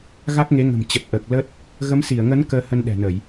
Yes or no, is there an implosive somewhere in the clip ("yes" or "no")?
yes